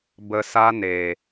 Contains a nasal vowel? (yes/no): no